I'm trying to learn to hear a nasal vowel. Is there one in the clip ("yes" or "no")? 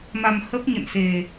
no